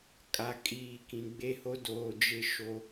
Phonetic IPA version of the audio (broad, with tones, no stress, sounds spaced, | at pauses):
kʼ a˨ kʼ iː˨ k ĩ˨ ɡ͡b e˦ h o˦ d oː˨ d͡ʒ ɪ˦ ʃ o˦